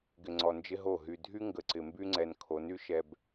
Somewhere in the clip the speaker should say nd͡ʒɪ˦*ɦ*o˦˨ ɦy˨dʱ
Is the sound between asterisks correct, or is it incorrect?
correct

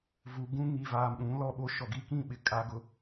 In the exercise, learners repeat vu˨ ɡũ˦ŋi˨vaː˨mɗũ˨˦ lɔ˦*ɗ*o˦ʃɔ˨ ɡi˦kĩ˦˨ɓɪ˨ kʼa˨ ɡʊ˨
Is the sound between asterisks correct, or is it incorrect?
incorrect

